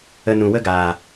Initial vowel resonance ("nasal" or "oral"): oral